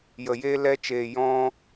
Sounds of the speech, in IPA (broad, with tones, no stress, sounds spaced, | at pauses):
j ə˨ j eː˧ l ɛ˧ t͡ʃ eː˨ j ɔ̃˧